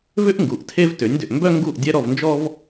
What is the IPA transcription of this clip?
vʏ˥ʔŋɡu˩ʔ tʰe˥vtʏ˩˥nʲdʏ˩ʔ mbœ˥ŋɡu˥˩ʔ dʲɛ˥ɾɔ˥˩vnd͡ʒɔ˥v

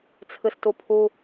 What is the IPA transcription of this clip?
t͡sʰɨstupʰu

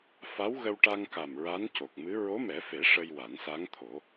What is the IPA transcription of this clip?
fa˧˥wɣə˧wʈa˧ŋka˨˩m ɹa˧˥nco˨˩k̚mɨ˧˥ ɹo˧˥mɛ˨˩˦fe˨˩˦ ʂə˧jwa˨˩˦nsa˧˥ŋt̪ʰo˨˩˦

